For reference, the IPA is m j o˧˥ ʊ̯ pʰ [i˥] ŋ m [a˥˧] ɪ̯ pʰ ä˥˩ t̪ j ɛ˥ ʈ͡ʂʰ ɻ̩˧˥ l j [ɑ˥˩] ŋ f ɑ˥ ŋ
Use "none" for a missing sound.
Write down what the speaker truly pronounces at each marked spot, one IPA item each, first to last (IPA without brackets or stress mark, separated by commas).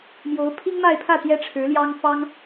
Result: i˥, a˥˧, ɑ˥